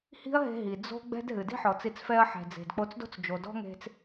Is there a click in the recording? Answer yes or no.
no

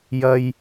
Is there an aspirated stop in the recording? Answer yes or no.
no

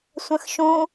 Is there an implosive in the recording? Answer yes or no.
no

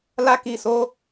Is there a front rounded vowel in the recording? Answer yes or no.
no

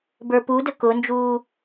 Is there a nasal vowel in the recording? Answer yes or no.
no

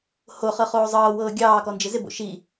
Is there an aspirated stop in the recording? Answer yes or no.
no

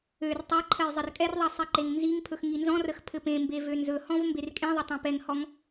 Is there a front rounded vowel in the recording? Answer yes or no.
yes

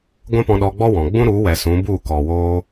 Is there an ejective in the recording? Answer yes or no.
no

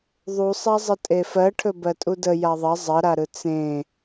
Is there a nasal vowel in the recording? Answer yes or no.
yes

